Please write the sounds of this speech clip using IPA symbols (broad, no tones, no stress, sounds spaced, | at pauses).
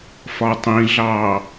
f ɒ tˤ ĩ ɮ ɑ